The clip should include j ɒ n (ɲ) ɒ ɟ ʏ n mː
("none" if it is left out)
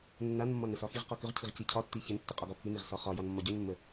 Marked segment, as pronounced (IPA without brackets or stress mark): mː